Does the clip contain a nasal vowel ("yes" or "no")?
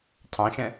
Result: yes